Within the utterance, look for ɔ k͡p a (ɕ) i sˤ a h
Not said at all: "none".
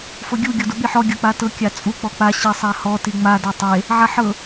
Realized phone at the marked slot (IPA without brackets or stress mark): ɕ